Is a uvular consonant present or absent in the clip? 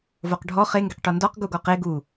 present